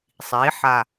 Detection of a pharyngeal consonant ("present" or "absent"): present